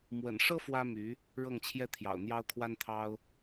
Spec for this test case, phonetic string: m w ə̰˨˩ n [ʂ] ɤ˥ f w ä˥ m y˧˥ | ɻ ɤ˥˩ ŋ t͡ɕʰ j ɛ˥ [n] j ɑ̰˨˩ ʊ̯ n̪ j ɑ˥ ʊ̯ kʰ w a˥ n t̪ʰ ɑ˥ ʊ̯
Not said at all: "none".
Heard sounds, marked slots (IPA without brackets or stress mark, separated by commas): ʂ, t̪ʰ